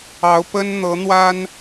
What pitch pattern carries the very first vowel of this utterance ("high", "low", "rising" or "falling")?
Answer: rising